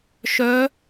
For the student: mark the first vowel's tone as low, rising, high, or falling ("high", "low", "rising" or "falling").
rising